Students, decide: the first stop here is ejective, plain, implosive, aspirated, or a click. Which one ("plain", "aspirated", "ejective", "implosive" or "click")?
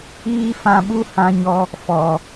implosive